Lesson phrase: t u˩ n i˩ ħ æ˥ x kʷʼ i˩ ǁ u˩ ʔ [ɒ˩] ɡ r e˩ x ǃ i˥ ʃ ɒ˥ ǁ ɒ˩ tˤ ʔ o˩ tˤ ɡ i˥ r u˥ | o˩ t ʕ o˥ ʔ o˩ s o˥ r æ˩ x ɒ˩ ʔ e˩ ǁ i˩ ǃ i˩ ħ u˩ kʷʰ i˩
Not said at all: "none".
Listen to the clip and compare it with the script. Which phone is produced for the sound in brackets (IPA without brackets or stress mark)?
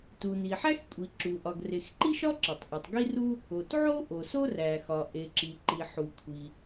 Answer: ɒ˩